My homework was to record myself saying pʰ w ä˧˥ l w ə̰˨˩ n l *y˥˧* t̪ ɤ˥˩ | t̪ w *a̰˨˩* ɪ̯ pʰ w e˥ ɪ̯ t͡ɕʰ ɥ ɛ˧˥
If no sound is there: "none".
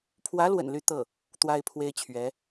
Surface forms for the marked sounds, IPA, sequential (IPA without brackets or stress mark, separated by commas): y˥˧, a˥